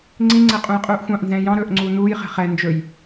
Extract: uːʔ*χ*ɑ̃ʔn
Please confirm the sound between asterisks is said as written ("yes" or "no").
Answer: no